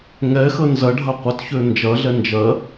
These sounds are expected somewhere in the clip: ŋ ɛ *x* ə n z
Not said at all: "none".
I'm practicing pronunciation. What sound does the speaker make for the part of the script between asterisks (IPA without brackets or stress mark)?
x